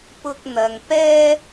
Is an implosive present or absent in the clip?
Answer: absent